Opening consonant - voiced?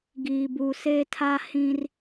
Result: yes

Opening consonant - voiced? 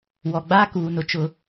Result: yes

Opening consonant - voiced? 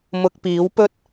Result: yes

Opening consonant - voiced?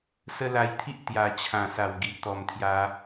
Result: no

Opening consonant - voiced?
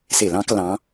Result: no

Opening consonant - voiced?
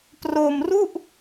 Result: no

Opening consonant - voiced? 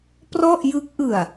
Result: no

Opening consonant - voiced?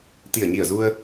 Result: no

